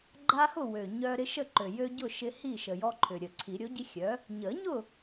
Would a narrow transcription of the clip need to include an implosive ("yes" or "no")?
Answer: no